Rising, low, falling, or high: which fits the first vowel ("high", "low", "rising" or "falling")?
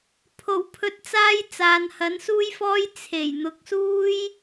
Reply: low